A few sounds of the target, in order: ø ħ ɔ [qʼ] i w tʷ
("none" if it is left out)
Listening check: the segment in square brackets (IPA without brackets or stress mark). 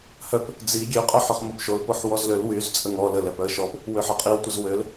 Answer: qʼ